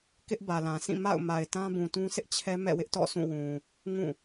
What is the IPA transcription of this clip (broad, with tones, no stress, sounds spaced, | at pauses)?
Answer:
k ɪ˦ ʔ b ä˨ l ã˨ s ĩ˦˨ m a̰˦˨ ʊ̯ m a˨ ɪ̯ t ã˦ b ũ˨ t ũ˦ s ɪ˦ ʔ t͡ɕʰ ɛ˦ m ɛ̰˦˨ w ɪ˦ ʔ t ɔ̰˦˨ sʰ ũ˦˨ w ũ˨ | ŋ ũ˦˨